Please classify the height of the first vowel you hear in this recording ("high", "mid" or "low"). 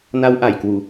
low